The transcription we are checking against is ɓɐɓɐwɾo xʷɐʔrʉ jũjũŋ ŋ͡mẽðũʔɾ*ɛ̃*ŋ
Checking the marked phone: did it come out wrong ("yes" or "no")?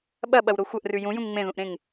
yes